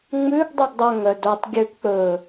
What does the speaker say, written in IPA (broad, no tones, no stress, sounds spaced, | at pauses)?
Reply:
ŋ͡m ʉ ɡ dˤ y ɡ dˤ œ ŋ œ d o tˤ ɡʲ ø p k͡p ɵ